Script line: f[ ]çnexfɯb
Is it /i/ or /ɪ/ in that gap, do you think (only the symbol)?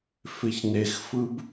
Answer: ɪ